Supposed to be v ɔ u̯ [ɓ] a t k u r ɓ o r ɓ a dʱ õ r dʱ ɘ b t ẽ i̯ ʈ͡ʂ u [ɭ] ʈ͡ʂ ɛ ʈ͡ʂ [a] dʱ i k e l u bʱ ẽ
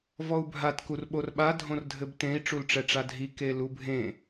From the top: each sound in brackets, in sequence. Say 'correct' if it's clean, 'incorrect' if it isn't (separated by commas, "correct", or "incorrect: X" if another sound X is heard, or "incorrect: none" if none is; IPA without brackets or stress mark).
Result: incorrect: bʱ, incorrect: l, correct